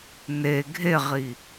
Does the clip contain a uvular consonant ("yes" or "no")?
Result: yes